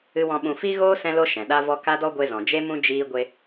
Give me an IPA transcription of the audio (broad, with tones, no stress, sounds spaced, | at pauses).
ɨ˦ w ɔ̃˦ ɓ ũ˧ f i˦ ɣ oː˦ s ɛ̃˦ l o˦ ʃ ɛ̃˨ ɗ a˦ v ɔ˦ k a˦ d ɔ˦ ɡʷ e˧ z ɔ̃˨ d͡ʒ e˦ m ũ˦ d͡ʒ iː˦ ɡʷ e˧